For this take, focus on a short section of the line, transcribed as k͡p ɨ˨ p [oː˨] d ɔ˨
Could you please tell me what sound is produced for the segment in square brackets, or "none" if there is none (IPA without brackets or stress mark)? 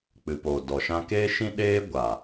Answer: oː˨